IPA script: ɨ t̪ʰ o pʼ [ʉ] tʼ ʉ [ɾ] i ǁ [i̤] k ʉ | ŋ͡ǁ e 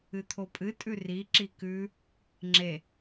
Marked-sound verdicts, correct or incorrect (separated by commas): incorrect, incorrect, incorrect